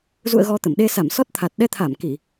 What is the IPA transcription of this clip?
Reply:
z ṵ˧˨ ə̯ ɣ ɔ˧ t̪ ə˧˩ m ɗ e˧ s a˧˩ m s ɔ˦˥ t̚ t̪ʰ a˨˩ t̚ ɗ ɛ˧ t̪ʰ a˧˩ m k i˧˩˨

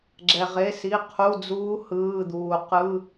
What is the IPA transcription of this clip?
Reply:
ɡ͡ǁ ɛ˩ ʁ e˩˧˩ s i˩˧˩ qʰ u˩˧˩ d͡z uː˨˦ h ɯː˩˧˩ d̪ uː˩ q ɯ˧˥˧

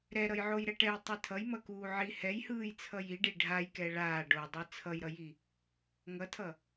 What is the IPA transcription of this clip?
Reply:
ɾ ɛ ɾ ʌ j ʕ o j ɾ ɛ ʈ ɛ j tˤ i tʰ ʌ j m ʌ k uː ʕ i h ɛ j h ɯː j t͡sʰ ʌ j i ɖ i ɖʱ a j k ɛ ɭ aː ɖ o dˤ ɯ t͡sʰ ʌ j ɾ ʌ j i | ŋ ʌ tʰ ʌ

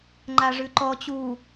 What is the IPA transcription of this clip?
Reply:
ŋ͡ǃ a ʐ ʉ ǃ ɔ t͡ɕ u

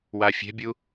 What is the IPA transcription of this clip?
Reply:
w a fʲ ɛ̤ bʲ u

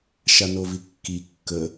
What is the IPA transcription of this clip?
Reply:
ʃ a n o v i kː i kː ə

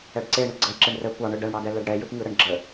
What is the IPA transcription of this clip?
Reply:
ɛ ɖ ǀ e ɳ ɯ ɡ͡ǀ ə j ǁ e ɳ r ə kʷ ɑ ɳ ɯ ɖ ɛ ɳ ɽ ɑ d ɛ l ɛ ɖ ɽ ɛ j ɯ p ŋ ɯ ɾ ə ɳ ɡ͡ǁ ə

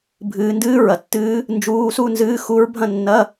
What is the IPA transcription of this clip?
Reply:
bʱ ɨː˨˦ n d ɨː˦˥ ɹ ɐ˨ tː ɨː˦˥ | n d͡ʒ uː˧˥˧ s u˥˧ n z ɨː˧˥˧ x u˦˥ ɹ bʱ ɐ̃˥˧ nː ɐ˧˥˧

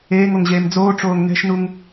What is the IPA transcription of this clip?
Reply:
eː ŋ o ŋ ʑ eː m d͡z oː ʈ͡ʂ oː ŋ n ɛ̤ ʃ n u ŋ

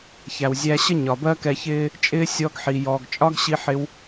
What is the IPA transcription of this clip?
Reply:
ç æ˩ w zʲ æ˧ ɕ ə˥ ɲ ɒ˩ b ɜ˥ k ɛ˧ ç ɪː˥ | t͡ʃʼ ɪː˥ sʲ ɔ˧ ɡ ħ i˩ j ɔː˩ ɡ t͡ʃʼ ɒ˥ ɡ ɕ i˧ ħ ɪ˧ w

